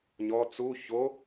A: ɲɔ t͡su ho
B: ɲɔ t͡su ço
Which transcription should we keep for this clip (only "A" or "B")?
B